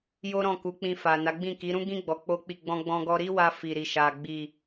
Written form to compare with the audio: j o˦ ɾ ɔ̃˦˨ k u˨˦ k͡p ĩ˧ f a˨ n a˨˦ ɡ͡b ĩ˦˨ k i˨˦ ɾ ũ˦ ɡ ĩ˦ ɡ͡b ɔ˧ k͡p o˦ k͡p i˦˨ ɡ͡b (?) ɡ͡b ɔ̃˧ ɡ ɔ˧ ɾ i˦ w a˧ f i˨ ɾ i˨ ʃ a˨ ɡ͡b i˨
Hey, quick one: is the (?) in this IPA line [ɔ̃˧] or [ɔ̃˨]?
ɔ̃˧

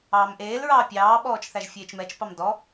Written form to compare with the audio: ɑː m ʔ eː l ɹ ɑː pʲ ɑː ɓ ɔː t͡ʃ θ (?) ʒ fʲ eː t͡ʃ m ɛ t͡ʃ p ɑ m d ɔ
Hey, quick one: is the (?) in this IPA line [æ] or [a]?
æ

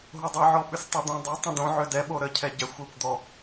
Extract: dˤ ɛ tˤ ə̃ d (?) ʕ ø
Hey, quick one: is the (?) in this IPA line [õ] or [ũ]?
õ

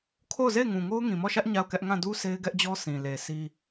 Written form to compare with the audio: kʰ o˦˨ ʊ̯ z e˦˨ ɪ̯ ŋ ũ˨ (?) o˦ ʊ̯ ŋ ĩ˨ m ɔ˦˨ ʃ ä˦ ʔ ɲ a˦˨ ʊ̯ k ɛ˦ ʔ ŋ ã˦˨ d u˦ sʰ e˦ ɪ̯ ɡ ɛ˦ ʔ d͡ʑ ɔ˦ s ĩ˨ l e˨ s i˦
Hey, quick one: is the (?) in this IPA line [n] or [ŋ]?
ŋ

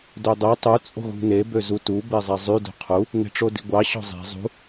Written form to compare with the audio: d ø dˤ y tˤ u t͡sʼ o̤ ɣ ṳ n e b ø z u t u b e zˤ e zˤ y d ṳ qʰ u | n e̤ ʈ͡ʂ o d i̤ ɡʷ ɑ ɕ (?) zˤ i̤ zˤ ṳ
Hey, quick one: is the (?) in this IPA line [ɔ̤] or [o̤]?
ɔ̤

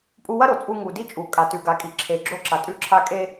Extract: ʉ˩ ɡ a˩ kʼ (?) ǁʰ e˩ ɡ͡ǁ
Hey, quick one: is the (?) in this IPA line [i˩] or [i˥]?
i˩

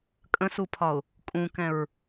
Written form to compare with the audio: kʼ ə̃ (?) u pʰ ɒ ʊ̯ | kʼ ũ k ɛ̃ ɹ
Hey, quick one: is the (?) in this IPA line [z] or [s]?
s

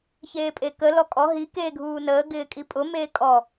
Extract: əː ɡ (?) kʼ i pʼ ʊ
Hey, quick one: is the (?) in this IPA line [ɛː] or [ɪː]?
ɪː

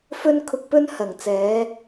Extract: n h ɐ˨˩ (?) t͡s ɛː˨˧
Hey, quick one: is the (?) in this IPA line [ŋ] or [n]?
ŋ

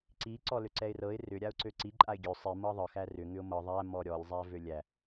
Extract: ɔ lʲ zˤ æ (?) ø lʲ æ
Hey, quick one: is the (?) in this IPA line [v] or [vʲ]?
v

